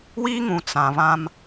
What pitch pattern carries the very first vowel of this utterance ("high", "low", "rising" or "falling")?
high